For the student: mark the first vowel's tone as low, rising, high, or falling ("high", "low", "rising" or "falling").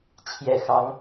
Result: low